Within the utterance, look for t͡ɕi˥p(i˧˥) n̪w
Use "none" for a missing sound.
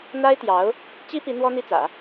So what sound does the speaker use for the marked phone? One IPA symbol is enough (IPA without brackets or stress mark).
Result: i˧˥